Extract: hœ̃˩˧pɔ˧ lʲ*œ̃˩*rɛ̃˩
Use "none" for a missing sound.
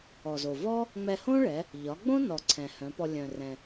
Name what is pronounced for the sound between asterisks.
œ̃˩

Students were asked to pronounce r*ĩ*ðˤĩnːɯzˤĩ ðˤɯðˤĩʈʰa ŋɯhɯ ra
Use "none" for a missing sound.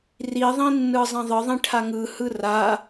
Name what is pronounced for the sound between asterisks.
i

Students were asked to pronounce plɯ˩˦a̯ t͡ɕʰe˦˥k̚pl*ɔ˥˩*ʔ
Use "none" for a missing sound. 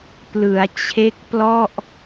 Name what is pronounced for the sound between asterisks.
ɔ˥˩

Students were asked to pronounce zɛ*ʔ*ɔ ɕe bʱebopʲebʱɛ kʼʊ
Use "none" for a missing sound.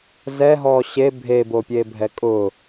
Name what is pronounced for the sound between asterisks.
ɦ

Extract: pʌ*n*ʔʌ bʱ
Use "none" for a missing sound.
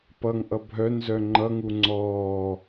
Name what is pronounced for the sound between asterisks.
ŋ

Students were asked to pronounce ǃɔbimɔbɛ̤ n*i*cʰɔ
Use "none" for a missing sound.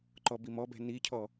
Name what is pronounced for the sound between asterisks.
i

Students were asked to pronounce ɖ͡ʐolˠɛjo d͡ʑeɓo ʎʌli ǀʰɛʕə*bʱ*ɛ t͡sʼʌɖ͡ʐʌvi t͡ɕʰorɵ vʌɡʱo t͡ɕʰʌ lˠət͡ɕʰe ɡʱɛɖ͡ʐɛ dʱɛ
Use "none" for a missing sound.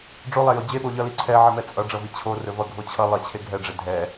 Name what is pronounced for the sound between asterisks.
m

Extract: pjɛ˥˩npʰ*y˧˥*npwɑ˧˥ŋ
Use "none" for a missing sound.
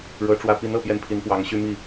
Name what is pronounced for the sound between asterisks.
i˧˥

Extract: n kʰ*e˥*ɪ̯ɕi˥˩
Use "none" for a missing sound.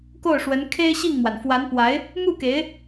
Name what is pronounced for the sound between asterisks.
e˥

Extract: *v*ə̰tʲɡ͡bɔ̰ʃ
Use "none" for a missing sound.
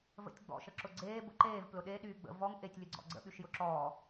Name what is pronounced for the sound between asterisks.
v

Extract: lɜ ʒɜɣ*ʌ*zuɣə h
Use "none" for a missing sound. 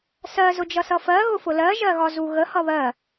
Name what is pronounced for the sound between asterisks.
ɒ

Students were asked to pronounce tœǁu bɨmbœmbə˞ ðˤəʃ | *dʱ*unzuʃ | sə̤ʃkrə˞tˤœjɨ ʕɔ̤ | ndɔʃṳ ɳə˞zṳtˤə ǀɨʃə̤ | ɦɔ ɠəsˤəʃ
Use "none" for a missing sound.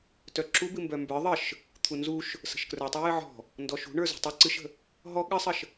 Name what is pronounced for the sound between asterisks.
t̪ʰ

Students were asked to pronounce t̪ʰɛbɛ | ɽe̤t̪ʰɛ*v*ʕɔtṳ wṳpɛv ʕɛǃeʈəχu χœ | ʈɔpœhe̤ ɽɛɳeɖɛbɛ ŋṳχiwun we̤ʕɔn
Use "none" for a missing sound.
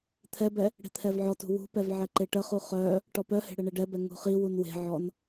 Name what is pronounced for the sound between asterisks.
v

